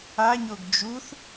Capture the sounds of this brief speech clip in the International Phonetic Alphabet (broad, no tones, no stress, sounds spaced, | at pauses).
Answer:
a ɲ o ɡ d͡ʒ u θ